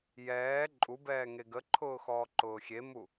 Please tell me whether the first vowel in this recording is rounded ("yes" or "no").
no